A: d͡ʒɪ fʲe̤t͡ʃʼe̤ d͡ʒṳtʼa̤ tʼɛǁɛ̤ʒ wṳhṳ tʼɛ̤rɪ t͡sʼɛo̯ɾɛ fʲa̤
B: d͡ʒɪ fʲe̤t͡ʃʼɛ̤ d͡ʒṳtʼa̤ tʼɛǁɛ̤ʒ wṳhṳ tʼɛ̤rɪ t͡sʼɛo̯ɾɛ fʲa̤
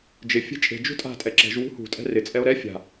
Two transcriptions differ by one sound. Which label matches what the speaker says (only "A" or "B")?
A